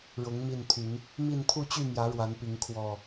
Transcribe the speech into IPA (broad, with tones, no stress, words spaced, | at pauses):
ɻʊ˨˦ŋ mi˥˨nt̪ʰy˨˦n | mi˥˨n t̪ʰu˥˨t͡ɕy˥˨mjä˨˦ ɻwa˨˦npi˨˦ŋ kʰwɔ˨˩